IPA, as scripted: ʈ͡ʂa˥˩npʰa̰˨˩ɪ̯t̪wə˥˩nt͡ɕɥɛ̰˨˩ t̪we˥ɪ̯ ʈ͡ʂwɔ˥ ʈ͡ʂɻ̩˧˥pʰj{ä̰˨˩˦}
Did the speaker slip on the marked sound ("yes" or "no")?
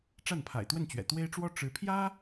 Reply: yes